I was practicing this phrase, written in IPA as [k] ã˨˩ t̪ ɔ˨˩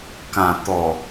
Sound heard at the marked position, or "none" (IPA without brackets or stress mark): k